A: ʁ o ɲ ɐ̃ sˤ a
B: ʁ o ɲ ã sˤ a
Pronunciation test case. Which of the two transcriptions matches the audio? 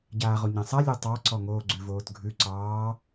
B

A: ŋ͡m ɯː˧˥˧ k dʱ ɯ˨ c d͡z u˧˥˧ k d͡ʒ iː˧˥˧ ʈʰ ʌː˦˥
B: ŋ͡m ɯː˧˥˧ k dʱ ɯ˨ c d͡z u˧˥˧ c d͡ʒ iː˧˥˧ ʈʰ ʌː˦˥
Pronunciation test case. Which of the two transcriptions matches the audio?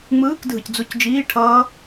B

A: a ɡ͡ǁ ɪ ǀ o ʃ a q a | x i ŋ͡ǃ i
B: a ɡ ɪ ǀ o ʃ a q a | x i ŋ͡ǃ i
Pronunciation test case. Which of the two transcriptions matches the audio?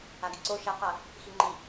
B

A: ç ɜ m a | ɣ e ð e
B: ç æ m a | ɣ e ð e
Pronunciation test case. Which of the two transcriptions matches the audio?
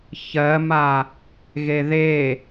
A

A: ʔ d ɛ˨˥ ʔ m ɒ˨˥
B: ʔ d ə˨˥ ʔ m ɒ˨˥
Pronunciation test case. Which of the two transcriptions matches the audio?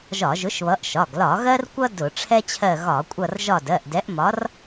A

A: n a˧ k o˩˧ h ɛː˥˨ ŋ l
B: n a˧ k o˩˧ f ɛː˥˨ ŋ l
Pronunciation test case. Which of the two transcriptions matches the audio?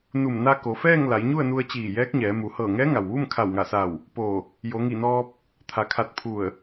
B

